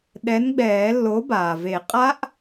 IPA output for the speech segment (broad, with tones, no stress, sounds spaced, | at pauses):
ɗ ɛ˨˥ n ɡ͡b ɛː˨˩˦ lː o˨˥ b aː˩ v e˨˩˦ qʼ a˦˥ ʔ